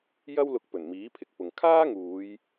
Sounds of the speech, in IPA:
jɐ˥wlʊ˧k̚pɵ˨˩n miː˨˥pʰɪ˨k̚pʊ˨ŋ kʰaː˥ŋuː˨˧j

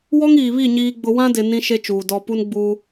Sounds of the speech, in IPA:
wɔ˦ŋiː˨βi˦˨ ɲiː˦ɡ͡bʊ˦ wã˦dɪ˨ nĩ˦ʃe˦t͡ʃuː˨ dɔ˨pu˦nɡ͡bu˦

